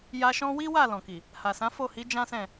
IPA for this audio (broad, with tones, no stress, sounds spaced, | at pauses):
j a˧ ʃ ɔ̃˦ w i˦ w a˦˨ l ɔ̃˨ k i˨ | h a˨ s ã˨˦ f o˦˨ h i˨˦ d͡ʒ ã˦ s ɛ̃˦˨